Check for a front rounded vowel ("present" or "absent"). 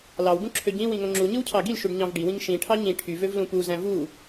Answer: present